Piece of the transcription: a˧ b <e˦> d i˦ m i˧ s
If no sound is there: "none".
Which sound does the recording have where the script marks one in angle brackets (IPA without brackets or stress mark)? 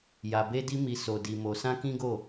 e˦